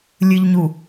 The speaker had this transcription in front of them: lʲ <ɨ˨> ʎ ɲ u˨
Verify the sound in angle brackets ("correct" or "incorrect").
correct